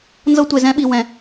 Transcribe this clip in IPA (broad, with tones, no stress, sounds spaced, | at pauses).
n z ɤ˦ tʷ e˧ z ɛ̃˦ ɓ i˧ w ɛ̃˧